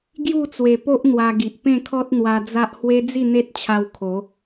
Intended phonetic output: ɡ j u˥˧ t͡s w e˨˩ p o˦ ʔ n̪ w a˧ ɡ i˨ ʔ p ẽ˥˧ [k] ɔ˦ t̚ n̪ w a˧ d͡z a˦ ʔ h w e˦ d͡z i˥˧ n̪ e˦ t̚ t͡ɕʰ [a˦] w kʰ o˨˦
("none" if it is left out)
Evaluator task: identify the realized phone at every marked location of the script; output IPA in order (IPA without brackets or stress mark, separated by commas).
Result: kʰ, a˧